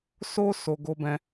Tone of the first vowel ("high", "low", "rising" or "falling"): high